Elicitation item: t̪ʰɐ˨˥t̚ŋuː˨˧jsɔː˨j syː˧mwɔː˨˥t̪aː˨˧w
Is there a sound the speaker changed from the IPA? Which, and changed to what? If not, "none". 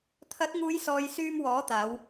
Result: none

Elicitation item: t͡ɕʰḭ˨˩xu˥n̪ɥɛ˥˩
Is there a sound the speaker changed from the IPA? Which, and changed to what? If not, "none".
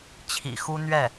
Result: none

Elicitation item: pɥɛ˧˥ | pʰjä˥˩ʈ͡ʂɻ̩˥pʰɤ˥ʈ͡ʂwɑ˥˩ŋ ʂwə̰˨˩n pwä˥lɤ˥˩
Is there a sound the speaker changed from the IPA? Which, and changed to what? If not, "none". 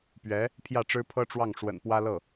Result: none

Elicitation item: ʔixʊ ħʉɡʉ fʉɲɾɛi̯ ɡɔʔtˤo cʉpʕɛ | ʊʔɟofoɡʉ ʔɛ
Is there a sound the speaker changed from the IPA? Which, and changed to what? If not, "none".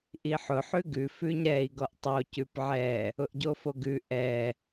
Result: x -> ħ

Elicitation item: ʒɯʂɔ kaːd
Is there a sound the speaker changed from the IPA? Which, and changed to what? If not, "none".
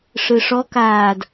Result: ʒ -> ʂ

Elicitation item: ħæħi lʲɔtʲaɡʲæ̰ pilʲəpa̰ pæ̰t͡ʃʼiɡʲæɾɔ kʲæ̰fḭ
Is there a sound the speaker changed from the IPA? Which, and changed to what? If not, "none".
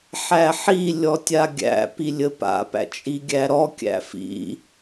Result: none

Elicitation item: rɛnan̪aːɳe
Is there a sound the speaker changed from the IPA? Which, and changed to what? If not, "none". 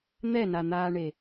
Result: r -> n̪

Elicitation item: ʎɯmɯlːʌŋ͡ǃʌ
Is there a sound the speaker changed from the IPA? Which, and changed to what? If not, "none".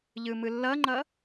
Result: none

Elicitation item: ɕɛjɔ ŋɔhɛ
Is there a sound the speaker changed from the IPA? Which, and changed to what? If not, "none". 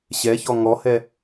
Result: j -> ç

